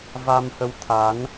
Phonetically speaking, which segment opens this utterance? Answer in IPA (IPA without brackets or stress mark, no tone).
v